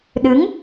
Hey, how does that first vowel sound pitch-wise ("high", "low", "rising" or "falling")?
rising